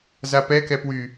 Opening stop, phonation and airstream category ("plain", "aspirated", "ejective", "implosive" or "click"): plain